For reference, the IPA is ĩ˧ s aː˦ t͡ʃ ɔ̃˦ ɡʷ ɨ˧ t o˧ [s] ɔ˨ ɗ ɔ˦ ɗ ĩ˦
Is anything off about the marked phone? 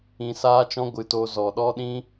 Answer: yes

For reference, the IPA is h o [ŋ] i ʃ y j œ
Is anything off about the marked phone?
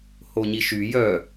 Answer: yes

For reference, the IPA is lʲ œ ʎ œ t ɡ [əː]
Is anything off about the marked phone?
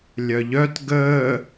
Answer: no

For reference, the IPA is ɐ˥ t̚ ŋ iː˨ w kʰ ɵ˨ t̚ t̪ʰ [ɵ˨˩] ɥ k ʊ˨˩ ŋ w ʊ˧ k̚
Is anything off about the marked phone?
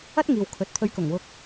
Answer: yes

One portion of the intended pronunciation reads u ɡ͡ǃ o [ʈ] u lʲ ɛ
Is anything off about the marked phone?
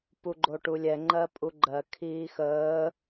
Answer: no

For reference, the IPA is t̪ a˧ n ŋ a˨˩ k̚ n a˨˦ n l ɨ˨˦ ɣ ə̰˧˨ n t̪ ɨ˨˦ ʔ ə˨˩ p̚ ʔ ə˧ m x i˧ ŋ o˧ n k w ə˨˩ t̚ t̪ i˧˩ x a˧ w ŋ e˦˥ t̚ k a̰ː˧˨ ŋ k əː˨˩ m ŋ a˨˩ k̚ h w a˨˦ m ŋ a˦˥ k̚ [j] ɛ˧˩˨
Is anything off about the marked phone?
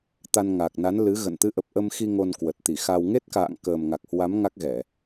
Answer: yes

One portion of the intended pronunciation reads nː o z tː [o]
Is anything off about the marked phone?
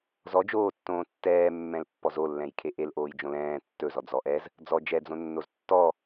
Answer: yes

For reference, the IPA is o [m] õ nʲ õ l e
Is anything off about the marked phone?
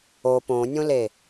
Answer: yes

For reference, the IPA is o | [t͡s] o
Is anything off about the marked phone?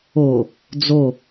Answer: yes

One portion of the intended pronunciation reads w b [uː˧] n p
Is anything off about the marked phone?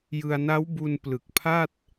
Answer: yes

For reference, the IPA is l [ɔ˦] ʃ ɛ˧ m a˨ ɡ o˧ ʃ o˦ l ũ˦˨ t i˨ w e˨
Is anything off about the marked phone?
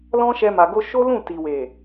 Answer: yes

